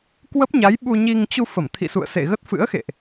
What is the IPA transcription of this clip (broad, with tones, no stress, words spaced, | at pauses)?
kwə˦˥p̚ɲa˨˦j ɓu˧ɲi˧ŋ t͡ɕu˧ fə˧˩mt̪ʰḭ˧˨sṵ˧˨ə̯sḛ˧˨ ɣə˦˥t̚fɨ̰˧˥ə̯xḛ˧˨ʔ